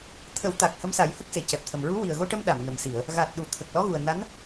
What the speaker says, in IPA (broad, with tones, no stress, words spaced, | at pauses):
t̪ʰə˨˩˦wt̪a˨˩k̚ hə˧˥msa˨˩˦jhə˦˥k̚ se˨˩˨cɛ˨˩p̚t̪ʰə˨˩m ɹu˧˥ wi˨˩ə̯ɣo˧ʈə˧m ɗa˨˩˨mnə˨˩msi˨˩˨ə̯ | ɣa˨˩t̚ɗu˨˩˨ t̪ʰə˨˩k̚ lɔ˧˥ɣu˨˩ə̯ na˧˥n